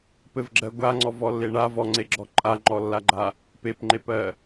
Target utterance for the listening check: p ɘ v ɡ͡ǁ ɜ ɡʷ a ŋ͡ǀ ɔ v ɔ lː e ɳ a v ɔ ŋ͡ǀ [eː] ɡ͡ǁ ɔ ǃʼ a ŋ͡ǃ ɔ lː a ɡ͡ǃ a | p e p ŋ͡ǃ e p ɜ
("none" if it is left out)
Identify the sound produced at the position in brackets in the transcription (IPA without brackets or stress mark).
e